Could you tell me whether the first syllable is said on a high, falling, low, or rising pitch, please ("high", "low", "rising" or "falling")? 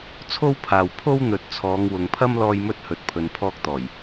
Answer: high